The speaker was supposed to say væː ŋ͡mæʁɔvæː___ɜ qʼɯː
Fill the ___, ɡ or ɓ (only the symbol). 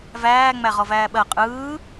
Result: ɓ